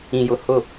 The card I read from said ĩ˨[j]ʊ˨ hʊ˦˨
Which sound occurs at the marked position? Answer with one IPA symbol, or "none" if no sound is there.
j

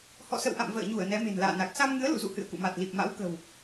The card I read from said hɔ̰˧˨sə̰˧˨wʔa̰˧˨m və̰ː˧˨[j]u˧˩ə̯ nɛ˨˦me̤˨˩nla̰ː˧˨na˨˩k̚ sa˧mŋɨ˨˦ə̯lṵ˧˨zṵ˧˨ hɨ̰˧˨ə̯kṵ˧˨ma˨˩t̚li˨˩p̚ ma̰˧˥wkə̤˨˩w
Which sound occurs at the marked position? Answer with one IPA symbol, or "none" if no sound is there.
ɲ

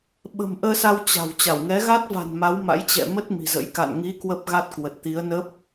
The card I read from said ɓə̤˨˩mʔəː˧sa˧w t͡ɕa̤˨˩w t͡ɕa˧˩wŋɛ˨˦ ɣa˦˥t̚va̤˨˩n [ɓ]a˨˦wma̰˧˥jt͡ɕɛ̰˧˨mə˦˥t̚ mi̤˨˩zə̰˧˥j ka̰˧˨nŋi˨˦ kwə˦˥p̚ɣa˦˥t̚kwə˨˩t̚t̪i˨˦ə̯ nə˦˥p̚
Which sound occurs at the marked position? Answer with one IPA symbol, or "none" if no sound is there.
m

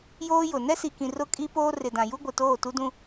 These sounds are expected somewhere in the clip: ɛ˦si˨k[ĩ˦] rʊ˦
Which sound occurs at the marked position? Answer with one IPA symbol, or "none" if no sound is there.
ĩ˨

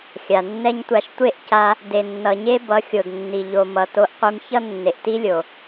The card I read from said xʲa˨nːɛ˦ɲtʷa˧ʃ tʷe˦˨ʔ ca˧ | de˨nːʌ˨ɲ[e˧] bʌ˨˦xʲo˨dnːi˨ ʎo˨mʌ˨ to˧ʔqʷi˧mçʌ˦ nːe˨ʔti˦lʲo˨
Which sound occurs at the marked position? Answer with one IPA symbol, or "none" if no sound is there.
e˦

